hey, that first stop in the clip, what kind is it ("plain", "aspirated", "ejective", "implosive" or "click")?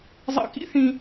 plain